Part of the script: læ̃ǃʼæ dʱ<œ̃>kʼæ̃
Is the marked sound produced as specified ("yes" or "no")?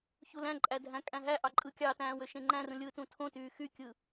no